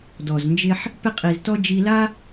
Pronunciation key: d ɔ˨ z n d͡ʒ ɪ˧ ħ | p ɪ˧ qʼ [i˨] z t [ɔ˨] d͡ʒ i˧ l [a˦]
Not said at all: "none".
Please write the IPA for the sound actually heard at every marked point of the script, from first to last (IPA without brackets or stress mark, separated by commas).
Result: i˨, ɔ˧, a˦